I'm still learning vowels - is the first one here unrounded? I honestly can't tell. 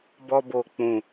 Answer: no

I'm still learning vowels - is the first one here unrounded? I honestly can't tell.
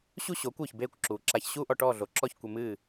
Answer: no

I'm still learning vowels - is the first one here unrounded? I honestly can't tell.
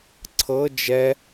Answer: yes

